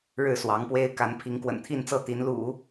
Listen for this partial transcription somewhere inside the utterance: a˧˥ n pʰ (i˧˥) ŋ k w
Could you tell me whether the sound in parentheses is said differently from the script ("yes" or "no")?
no